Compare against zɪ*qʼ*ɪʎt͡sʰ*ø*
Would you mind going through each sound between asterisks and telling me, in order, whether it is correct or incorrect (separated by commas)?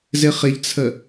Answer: incorrect, incorrect